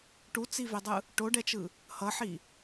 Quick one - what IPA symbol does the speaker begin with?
ʈ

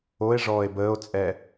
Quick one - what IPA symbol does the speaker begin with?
o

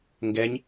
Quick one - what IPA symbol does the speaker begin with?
ŋ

